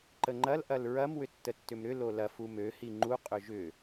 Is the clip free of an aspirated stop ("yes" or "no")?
yes